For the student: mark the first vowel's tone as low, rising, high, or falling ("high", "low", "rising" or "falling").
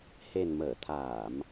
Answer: low